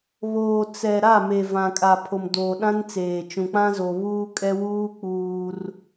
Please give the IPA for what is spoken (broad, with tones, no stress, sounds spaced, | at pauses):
β oː˨ t͡s ɛ˨ ɾ a˦˨ m e˨ v ã˨ kʼ a˨ pʰ o˨ m d oː˨ ɗ ã˦ n t͡s eː˨ t͡ʃ ũ˨ k͡p ã˦ z o˨ β uː˦ kʼ ɛ˦ w uː˦ k͡p uː˦ r